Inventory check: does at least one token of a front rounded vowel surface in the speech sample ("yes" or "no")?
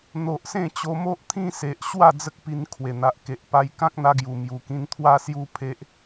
no